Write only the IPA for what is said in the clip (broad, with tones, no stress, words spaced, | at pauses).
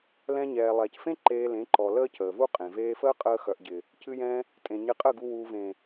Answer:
lɛ̃˧ ɲɛː˨ lˠɛː˨cfẽ˦ ǃeː˧lẽ˨˦ǃɔ˨ ləː˦cəː˨vu˦qʼẽ˨ veː˧fəː˦qʼəː˧ xœ˨ʔɟɪ˨ | cɨ˧jɛ̃˧ | tʼẽ˨ɲɪ˧qʼə˦˨ɡu˧ wuː˨vẽ˨